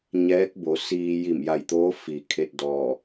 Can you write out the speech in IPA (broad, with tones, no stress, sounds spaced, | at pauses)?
ɲ ɛː˧˥ k̚ b o˩˧ s iː˧ j i˧˩ m j a˧˩ j t̪ oː˧˥ f i˩˧ kʰ e˧ t̚ d ɔː˧˩